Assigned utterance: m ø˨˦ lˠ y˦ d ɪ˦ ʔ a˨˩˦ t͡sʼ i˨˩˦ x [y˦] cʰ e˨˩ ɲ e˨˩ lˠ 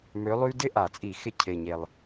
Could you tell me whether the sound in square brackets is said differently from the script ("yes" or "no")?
yes